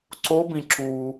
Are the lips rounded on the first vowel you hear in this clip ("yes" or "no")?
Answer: yes